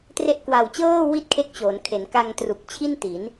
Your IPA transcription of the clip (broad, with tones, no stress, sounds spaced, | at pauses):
t r e˦˥ ʔ k w a˨˩ w t͡ɕ ɤː˥˩ w i˥˩ t̚ kʰ e˦˥ k̚ t͡ɕ oː˩˦ n kʰ e˩˦ n k a˧ ŋ t r u˨˩ k̚ t͡ɕʰ i˥˩ n t i˩˦ n